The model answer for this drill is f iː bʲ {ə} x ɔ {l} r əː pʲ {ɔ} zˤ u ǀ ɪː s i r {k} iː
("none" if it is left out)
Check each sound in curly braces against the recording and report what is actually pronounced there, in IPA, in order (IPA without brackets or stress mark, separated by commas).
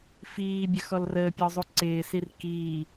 ə, l, ɔ, k